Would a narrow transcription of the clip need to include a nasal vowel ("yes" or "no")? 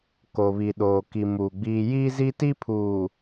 no